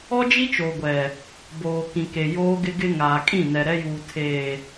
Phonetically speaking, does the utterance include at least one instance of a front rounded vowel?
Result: no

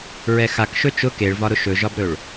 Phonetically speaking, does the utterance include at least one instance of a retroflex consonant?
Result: yes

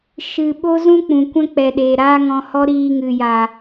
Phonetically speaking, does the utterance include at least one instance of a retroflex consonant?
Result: no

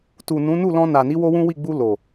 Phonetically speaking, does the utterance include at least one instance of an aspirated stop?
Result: no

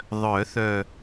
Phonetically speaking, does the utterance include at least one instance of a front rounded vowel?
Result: yes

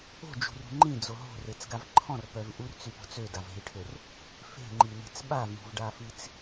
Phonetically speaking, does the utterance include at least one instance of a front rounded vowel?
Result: yes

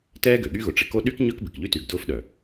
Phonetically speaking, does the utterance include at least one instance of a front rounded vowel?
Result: yes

